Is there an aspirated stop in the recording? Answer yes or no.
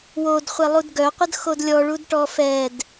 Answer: no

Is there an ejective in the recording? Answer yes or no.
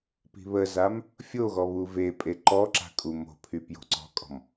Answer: yes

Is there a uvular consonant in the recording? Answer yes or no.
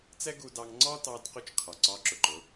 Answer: yes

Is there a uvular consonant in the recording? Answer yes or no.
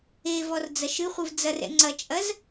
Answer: yes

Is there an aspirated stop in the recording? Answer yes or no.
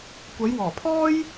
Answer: yes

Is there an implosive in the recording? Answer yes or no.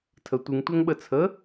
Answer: yes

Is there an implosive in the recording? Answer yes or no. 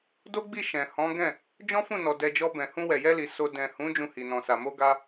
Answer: no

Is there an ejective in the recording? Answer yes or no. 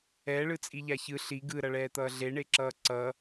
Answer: yes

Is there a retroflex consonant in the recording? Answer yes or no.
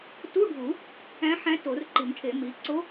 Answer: yes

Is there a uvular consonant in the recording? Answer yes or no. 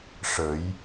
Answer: no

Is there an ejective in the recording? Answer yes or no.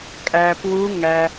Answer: yes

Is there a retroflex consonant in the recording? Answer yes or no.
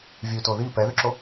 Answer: no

